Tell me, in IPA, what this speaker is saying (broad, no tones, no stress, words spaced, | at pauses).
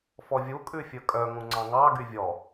fɔvʲu kʼʉfʲɵkʼœ ŋũŋ͡ǀɑ̃ŋɑ ɡyvʲɔ